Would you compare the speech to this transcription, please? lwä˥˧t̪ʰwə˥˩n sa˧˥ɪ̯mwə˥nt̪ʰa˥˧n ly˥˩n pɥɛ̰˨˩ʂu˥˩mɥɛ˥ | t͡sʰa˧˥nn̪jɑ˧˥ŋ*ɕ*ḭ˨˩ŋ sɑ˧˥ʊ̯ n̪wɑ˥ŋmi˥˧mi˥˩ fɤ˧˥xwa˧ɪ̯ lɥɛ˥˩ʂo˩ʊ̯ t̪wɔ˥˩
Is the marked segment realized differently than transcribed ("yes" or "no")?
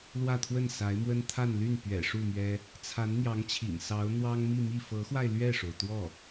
yes